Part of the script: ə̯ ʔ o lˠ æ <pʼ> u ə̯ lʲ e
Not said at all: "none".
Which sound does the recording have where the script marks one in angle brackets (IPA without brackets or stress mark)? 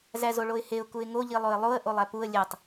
p